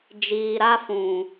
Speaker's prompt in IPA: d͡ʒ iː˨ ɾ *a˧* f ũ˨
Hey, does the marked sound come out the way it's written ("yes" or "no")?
yes